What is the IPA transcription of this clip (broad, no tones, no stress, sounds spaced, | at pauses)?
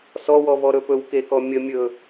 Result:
s ɔ w ɔ β ɔ ɾ ɵ p ɵ w k e k ɔ mʲ ə mʲ ɵ